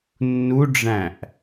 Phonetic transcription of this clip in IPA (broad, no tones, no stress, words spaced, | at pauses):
nːuɖ͡ʐæ̃ʔ